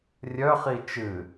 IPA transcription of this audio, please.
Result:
rʲ œ χ i t͡ʃ ɨ

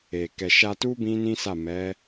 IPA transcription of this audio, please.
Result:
e˨ k ɛ˨ ʃ a˧ t u˦ b ĩ˦ n ĩ˦ s a˦˨ m ɛ˨˦

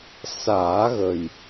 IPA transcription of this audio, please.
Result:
s aː˨˩˦ ɣ ə˨˩ j

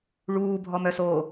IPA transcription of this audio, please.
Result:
ɭ uː bʱ ɔ m œ s oː

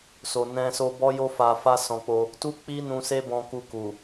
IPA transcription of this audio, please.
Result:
s o˨ n ɛ̃˧ s o˧ b ɔ˦ j o˦ f a˧ f a˦ s ɔ̃˧ k͡p o˧ | t u˦ k͡p i˦ n ũ˧ s e˦ b ɔ̃˧ k u˧ k u˨

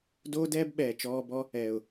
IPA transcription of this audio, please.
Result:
d oː˦ d ɛː˦ b ɓ ɛː˨ t͡ʃ ɔː˧ b ɔ˦ | ɛː˨ ʊ̯

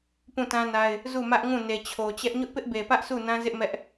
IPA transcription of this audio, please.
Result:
p ũ˦˨ t ã˦ n a˦ ɪ̯ | z u˦˨ m ä˦ ʔ ŋ ũ˦˨ n e˨ t͡ɕʰ o˨ t͡ɕ ɛ˦ ʔ ɲ ʊ˦ ʔ p ɪ˦ ʔ b e˨ p ä˦ ʔ sʰ u˦˨ n ã˦ z ɪ˦ ʔ m ɛ˦ ʔ

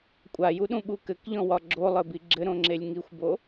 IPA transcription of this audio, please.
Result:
kʷʼ a j u ɗ ũ ɓ u k ɘ k ʎ ɔ̃ w ɒ ɡ͡ǁ o lˠ ɘ b i ɡ͡ǁ ɘ ɾ õ ŋ͡ǁ e lʲ ŋ i xʷ b o

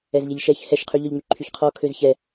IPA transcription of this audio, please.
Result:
ɛ z ʎ ɛ ʎ ʃ ɛ ç h ɛ ʃ qʰ y ʎ œ ʎ ŋ͡m y ǃʰ y ç qʰ ɔ kʰ ø z ç ɛ

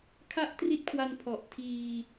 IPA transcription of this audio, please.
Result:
kʰ a˥˩ ʔ t r i˦˥ t̚ kʰ w a˧ n pʰ ɔ˨˩ ʔ tʰ iː˧

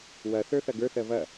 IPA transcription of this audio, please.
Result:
w ɐ θ ə˞ θ ɐ ɡ ə˞ θ ɜ v ɐ

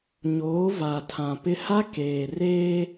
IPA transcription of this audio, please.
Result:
ɲ oː˨˦ v a˨ tʰ ã˨ p ɪ˦ h a˦ k eː˨ r eː˦

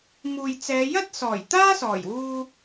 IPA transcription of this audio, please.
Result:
m uː˨ j t͡s ɛː˨˧ j ɐ˥ t̚ s ɔː˨˩ j t̪ aː˥ s ɔː˨˩ j w uː˧

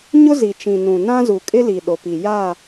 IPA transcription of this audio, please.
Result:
ɲ ʊ˦ z i˨ t͡ʃ ĩ˨ n ũ˨ n ã˦ z u˨ kʼ ɪ˦ l i˨ ɗ o˨ p i˨ j a˦˨

